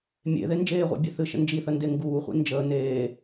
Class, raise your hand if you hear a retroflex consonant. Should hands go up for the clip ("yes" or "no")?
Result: no